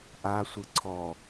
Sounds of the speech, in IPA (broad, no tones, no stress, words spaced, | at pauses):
ʔa sʷɯǀʰɔ